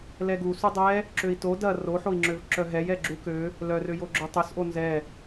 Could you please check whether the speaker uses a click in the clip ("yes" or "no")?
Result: yes